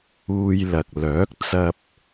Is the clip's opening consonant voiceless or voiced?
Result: voiced